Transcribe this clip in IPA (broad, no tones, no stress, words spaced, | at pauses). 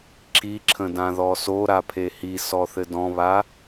ǁiǁʰə̃ dãðɔso ɾapʰehi sɔθɘdɔ̃βa